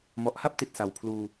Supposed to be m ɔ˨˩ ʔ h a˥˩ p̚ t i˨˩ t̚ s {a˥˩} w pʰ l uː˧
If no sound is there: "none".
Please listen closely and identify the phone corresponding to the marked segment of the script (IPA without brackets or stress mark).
a˨˩